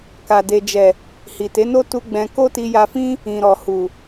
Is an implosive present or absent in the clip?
absent